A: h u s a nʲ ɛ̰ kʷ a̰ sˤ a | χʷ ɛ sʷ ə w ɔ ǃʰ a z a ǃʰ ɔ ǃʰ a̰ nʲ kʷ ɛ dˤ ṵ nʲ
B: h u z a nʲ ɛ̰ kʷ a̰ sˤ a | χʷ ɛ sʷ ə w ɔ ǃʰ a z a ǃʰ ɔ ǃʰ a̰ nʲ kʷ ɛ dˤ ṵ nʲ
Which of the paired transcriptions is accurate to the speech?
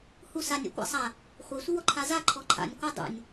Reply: A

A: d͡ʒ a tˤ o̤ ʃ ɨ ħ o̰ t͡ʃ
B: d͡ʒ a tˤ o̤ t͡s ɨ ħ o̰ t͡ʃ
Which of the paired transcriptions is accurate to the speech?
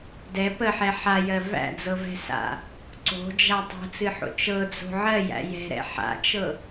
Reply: B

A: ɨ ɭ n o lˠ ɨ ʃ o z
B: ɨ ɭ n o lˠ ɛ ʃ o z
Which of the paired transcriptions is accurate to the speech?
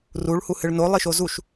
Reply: A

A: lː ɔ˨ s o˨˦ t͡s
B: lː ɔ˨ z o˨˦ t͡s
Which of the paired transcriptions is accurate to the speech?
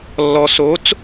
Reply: A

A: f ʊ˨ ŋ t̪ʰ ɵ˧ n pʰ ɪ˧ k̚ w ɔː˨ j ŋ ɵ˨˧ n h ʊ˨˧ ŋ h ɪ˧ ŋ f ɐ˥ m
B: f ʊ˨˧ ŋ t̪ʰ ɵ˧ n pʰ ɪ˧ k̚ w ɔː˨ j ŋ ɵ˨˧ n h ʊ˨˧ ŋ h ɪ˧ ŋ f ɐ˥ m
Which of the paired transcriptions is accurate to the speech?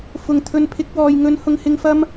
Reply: A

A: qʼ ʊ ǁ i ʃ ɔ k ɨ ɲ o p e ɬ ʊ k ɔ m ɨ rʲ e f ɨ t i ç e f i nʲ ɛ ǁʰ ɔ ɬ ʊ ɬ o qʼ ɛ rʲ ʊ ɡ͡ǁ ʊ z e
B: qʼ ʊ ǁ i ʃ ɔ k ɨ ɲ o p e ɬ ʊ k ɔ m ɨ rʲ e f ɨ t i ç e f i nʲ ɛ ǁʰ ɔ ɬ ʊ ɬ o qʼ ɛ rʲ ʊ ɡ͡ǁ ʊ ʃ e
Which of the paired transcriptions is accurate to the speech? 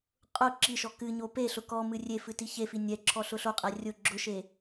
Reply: B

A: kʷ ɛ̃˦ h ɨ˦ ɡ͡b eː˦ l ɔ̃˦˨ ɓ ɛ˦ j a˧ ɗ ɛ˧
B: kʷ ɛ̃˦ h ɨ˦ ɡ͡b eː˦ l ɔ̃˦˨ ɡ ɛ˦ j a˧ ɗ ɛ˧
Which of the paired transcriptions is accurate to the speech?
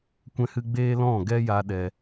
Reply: B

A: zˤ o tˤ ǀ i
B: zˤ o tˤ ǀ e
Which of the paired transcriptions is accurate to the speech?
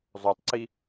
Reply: A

